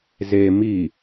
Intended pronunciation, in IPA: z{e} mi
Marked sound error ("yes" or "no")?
no